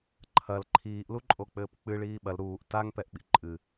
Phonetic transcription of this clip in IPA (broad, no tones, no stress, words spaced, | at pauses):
ǃʰɐl ǃʰiːʔluǃʼo k͡pɘːpk͡pɨ ɭiːɓɐl ɾuːʔ taŋpɛʔɓḭ ǃʼɨ